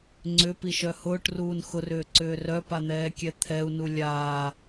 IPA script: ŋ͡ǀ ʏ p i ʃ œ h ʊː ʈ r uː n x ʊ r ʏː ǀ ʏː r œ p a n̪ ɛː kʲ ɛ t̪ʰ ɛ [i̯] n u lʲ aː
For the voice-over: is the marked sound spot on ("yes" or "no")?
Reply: no